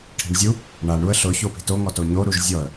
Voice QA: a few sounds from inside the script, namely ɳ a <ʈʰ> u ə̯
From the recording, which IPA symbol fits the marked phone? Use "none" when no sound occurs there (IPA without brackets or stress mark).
ɳ